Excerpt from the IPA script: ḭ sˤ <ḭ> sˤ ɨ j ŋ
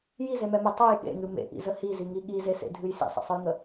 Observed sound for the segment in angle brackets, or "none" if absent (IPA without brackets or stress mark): ḛ